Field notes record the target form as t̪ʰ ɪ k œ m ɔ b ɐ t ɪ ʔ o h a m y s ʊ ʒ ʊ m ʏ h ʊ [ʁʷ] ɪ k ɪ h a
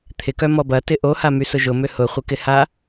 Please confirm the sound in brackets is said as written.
no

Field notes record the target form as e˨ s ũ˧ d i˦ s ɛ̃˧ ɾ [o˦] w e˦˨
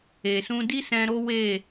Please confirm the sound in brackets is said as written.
yes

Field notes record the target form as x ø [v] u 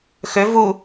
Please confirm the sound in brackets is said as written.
yes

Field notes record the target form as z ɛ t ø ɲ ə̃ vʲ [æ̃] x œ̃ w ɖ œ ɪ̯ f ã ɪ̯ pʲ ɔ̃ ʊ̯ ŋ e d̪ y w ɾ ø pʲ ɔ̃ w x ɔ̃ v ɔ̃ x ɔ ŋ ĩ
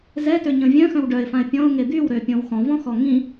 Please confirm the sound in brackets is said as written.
no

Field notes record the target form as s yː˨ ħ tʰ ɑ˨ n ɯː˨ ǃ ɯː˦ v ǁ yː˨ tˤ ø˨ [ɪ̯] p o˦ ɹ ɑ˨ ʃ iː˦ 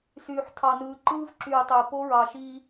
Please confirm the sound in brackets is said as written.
yes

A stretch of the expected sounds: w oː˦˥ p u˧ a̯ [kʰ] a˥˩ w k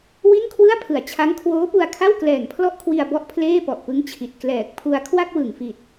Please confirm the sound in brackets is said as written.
yes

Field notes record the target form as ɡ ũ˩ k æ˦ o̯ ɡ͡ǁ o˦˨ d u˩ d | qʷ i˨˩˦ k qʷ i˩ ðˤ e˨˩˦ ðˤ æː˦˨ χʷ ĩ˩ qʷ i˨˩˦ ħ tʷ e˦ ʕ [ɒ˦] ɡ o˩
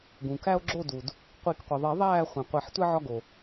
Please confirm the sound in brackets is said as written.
yes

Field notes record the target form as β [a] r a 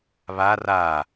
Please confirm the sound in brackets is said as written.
yes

